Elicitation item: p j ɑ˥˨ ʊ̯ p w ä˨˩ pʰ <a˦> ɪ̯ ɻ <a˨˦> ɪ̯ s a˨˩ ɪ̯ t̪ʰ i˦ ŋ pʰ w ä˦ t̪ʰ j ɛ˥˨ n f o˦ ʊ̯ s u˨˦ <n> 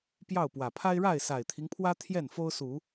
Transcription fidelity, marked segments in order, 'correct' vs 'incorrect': correct, incorrect, incorrect

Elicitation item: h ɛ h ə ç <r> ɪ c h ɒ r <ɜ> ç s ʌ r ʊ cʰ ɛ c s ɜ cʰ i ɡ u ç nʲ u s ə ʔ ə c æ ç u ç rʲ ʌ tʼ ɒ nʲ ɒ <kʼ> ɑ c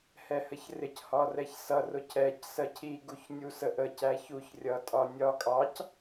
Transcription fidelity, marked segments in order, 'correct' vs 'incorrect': correct, incorrect, correct

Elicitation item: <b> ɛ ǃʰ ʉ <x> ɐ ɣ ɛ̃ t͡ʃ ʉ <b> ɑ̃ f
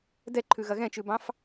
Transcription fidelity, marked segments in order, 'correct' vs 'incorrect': incorrect, incorrect, correct

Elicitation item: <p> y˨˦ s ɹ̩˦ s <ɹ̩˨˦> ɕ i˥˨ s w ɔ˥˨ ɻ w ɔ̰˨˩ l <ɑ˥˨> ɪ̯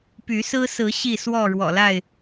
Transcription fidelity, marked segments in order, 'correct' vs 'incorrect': correct, correct, incorrect

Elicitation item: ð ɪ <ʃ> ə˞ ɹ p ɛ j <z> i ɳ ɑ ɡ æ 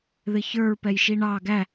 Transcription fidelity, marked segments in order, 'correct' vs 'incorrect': incorrect, incorrect

